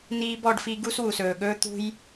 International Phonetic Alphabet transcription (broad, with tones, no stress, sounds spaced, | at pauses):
n iː˦ b ɔ˨˦ ɖ f i˦ ɡ u˦ s w u˨ s ɵː˨ ɠ ɵː˦ t̪ ṳ˦ j